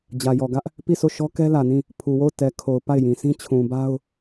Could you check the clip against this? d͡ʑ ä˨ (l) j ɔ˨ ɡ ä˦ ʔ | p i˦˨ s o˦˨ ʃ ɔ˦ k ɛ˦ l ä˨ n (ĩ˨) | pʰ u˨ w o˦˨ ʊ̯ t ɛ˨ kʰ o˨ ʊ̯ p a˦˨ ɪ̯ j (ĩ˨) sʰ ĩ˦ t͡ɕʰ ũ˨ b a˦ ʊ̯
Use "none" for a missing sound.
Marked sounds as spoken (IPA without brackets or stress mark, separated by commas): none, ĩ˦˨, ĩ˨